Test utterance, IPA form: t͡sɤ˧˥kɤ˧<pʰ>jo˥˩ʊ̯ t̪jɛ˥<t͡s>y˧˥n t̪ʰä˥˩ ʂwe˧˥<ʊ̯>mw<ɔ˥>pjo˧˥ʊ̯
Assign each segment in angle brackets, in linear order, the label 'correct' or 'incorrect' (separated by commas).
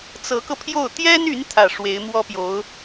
correct, incorrect, incorrect, correct